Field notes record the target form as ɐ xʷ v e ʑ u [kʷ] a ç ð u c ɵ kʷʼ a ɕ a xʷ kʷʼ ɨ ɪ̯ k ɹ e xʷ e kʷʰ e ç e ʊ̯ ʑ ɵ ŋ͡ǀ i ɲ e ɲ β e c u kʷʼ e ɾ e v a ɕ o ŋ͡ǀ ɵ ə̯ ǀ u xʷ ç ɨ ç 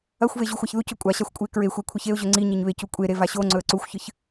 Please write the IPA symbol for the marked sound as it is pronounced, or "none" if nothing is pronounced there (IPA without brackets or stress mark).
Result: xʷ